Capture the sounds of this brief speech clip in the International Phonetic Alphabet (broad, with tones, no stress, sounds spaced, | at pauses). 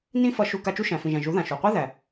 n ĩ˦ f ʌ˧ ʃ u˧ k a˧ t͡ʃ u˦ ʃ æ̃˨ f ĩ˨ ʒ æ̃˨ ʒ u˨˦ ð ã˨ ʃ u˨ qʷ i˦ ð æ˨